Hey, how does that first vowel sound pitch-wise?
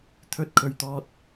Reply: high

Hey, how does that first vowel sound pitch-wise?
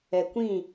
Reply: low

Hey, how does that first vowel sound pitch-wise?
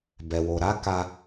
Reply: low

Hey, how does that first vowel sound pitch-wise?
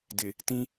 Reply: low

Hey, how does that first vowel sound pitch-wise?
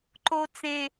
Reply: high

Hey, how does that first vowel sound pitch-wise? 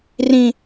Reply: high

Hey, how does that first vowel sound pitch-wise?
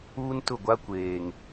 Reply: high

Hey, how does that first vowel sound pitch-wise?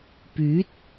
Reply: rising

